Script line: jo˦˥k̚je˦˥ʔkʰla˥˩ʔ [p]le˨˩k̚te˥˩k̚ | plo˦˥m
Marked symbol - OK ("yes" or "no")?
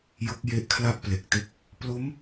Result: yes